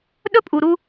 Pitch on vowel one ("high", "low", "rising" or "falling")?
high